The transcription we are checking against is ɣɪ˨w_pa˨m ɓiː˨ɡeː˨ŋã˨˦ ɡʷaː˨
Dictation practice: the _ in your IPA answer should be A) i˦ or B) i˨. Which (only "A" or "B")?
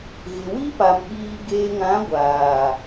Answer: A